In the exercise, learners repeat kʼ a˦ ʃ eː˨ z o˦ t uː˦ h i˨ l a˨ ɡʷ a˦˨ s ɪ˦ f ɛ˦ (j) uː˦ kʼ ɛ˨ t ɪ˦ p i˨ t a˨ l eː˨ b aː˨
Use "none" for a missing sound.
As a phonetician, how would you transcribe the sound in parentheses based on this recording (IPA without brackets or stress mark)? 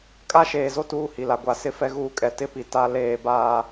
ɣ